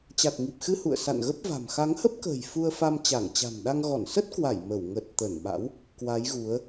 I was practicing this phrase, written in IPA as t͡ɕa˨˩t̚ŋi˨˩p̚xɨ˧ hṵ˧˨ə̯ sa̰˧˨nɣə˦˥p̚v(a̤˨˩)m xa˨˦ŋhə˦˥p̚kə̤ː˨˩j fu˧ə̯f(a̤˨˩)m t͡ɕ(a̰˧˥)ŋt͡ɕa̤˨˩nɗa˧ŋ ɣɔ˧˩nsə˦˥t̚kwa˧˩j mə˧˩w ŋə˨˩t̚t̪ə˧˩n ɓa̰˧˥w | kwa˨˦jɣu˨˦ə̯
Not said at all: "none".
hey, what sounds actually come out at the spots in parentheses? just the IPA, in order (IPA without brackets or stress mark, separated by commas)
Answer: a̤˨˩, a˧, a˧˩